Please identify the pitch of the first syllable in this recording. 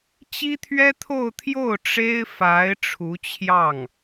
high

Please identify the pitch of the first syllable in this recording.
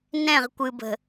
falling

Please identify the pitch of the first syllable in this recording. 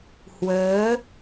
rising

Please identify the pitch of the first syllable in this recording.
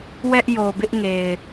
high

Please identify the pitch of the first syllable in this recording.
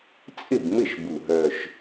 falling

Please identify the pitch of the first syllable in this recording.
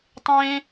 high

